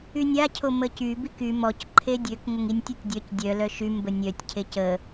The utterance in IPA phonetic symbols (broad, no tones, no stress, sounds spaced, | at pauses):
y nʲ a cʰ o m ə c y b i k y m ɔ c ǃʰ e dʲ ø k ŋ ə ŋ i nʲ tʲ o tʲ dʲ œ c dʲ œ l œ ʃ y m b ə nʲ œ tʲ cʰ e c ə